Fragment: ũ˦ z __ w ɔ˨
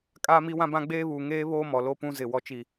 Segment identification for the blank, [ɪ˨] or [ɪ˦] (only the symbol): ɪ˨